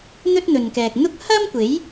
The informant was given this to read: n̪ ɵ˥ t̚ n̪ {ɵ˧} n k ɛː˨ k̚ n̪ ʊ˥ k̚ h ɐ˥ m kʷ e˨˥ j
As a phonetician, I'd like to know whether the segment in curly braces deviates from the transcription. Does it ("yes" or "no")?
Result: yes